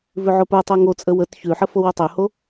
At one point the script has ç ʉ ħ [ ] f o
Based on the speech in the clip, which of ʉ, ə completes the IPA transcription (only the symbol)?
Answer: ə